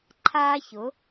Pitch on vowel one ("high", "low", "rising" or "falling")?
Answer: high